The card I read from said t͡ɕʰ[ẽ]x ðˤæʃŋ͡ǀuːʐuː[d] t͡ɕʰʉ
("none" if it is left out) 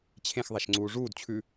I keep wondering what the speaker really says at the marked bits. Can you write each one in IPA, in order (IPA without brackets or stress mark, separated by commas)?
ẽ, d